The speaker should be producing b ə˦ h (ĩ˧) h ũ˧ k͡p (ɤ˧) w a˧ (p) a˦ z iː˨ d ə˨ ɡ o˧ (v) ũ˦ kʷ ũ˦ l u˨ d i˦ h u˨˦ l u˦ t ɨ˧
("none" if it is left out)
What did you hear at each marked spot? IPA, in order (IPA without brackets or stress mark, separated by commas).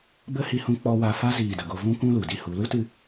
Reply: i˧, ɔ˧, f, v